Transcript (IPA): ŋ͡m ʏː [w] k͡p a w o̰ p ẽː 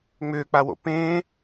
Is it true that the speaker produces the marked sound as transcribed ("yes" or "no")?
no